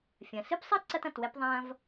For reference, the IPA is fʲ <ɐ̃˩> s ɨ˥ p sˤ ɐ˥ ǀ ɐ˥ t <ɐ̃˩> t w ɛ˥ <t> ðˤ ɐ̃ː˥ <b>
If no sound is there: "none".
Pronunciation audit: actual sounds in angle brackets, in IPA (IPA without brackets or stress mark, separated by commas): ɐ̃˩, ɐ̃˩, p, v